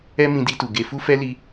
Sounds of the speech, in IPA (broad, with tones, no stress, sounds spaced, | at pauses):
ɛ˦ m ĩ˧ d i˧ t u˨ ɡ e˨ f u˧ f ɛ˧ l i˧